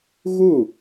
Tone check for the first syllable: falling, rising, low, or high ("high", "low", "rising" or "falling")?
falling